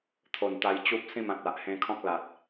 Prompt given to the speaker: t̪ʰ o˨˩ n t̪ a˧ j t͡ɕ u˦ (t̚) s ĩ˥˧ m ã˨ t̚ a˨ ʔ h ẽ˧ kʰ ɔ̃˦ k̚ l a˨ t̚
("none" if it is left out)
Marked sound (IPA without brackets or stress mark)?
p̚